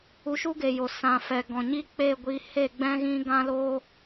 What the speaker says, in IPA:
u˧ ʃ u˦ ɡ e˨ j o˨ s ã˨ f ɛ˨ ɡ ɔ̃˨ ɲ i˦ k͡p e˦˨ ɡʷ i˧ h e˦˨ ɡ͡b ɛ̃˦ ɣ ĩ˦ ɡ ã˦ l oː˦

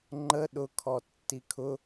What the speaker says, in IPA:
ŋ͡ǃ ə ɗ ʊ kʰ ɔ tː i kʰ ʊ

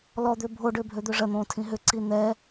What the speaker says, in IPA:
l ɔ d̪ ʏː bʱ o ɖ ʏː bʱ ø d̪ ø ʐ ɜ n̪ õː tʰ ĩ ɦ ʏ ǀ i n̪ ɛ

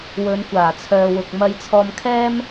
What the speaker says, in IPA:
w ɵ˨˧ n kʷ aː˨˩ t͡sʰ œː˨ w ʊ˨ k̚ m ɐ˧ j t͡sʰ ɔː˧ m kʰ ɛː˥ m

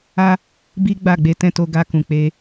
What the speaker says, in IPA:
a˦ | b i˦ ɡ͡b a˦˨ ɡ͡b e˨˦ t ɛ̃˧ t o˧ ɡ a˧ k ũ˨ k͡p e˧

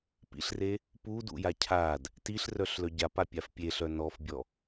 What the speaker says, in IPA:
p ḭ ɬ r e | p u d ṵ j a cʰ a d | t i ɬ r œ ɬ l œ ɟ a p a pʲ a f pʲ e ɬ œ n ɔ f bʲ ɔ

